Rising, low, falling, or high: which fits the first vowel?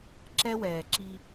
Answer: high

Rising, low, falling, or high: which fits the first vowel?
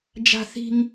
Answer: high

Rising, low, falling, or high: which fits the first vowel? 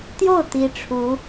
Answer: falling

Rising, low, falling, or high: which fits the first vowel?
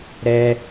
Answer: high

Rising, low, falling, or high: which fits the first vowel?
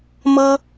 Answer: high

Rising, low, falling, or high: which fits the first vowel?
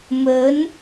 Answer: rising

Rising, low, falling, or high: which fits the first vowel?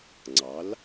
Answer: rising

